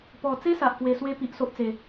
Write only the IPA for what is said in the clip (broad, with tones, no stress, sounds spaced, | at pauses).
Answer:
p ɔ˨˩ t͡s e˦ s a˨ ʔ k w e˧ s w e˦ p i˨ ʔ s o˦ ʔ t͡s e˨˩